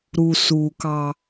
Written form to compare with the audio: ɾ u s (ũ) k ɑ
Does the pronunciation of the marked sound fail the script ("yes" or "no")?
yes